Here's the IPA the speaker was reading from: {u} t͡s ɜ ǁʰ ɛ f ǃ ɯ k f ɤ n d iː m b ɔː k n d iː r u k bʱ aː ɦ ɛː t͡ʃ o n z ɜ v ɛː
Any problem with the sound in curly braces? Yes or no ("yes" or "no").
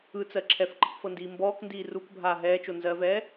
yes